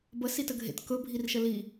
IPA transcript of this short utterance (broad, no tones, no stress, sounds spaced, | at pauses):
b ə s i t ə ɡʱ ḛ t k ɵ bʱ i r ʃ ə l i